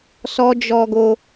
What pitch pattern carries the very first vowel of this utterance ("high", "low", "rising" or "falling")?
high